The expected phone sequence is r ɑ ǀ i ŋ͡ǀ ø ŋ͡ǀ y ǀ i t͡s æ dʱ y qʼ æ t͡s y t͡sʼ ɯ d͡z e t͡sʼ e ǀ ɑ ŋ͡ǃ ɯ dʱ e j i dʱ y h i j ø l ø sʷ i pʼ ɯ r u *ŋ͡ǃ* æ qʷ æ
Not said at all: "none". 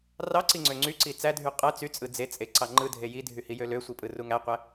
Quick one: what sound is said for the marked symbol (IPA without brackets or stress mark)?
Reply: ŋ